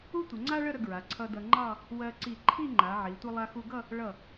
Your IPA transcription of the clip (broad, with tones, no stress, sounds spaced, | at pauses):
u˥ tʷ ə˩˧ ŋ͡ǀ a˥ ɭ ə˥˧ ɾ ə˧ ɡ ɹ a˩˧ ǀʰ ʌ˧ d ʌ˧ ŋ͡ǃ ɑ˥˧ | w ɜ˧ ǀ i˧˩ ǃʰ i˥˧ ŋ͡ǃ a˩˧ ʕ i˩˧ tʷ ʌ˧ lˠ a˧ x u˧ ɡ ʌ˥˧ | ɭ ʌ˧˩